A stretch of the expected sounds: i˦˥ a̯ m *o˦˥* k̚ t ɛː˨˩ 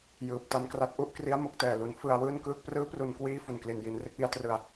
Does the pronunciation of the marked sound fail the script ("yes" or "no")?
no